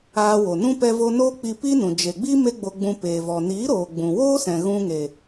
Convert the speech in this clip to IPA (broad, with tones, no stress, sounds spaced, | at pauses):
aː˧ w o˨ n ũ˦ p ɛ˧ v o˧ n oː˦ k͡p i˧ p i˦ n ũ˨ d͡ʒ e˨ ɡ͡b i˦ m e˦ ɡ͡b o˧ ɡ͡b ũ˧ p eː˨ v ɔ˨ n iː˨˦ ɾ oː˨ ɡ͡b ũ˨ w oː˦ s ɛ̃˨ ɣ ũ˧ ŋ e˨